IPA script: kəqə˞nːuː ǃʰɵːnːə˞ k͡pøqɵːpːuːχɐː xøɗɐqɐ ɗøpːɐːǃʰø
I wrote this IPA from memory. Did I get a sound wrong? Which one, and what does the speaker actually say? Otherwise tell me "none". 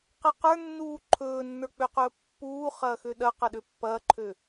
k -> q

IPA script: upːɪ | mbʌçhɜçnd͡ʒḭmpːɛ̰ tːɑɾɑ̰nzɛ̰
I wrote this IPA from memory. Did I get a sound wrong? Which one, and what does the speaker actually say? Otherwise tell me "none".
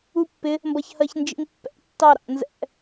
none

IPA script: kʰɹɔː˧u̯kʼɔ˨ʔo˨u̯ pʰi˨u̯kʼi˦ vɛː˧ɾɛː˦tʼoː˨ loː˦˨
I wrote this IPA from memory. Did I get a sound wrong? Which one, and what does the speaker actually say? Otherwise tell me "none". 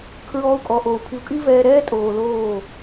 none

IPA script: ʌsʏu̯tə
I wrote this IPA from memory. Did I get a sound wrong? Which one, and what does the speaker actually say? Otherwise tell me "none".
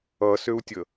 t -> tʲ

